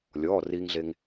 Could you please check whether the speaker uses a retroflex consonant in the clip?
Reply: no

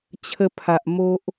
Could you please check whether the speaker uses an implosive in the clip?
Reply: no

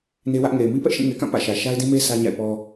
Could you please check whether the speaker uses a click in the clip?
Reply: no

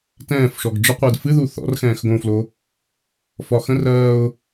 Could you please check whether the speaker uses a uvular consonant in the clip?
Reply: yes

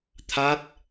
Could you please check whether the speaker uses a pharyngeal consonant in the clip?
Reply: no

